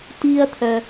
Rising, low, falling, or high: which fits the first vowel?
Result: high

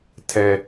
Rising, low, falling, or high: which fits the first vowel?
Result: high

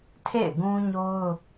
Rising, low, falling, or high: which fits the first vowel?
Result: falling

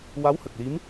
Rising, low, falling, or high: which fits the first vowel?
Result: rising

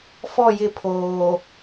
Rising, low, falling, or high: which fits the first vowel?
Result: falling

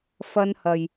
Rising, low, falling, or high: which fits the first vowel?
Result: high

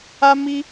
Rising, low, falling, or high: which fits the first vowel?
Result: high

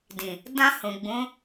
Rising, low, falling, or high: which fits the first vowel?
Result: low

